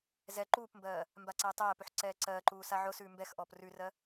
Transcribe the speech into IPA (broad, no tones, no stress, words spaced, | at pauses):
zɛ ǃuːpmbɜː | mbaǀæːtˤæːpʉħ ǀɛːǀɜːǃuː saʕʊsʉː mbɛxʔɔːp rʉrɜ